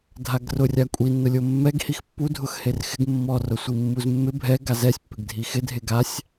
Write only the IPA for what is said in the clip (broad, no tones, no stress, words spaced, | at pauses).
dʱaɡrʊrʲa kʷʼinːʊlʲo mːɛɡhix pːudʱʊx herxɪɡ mːɔrʊsʷi mːuzmːɪ bʱɛ ɡazɛsʲpːɪɡdʱi xɪdʱe ɡasʲ